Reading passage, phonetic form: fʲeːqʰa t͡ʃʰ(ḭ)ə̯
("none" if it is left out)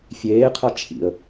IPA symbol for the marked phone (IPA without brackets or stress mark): ḭ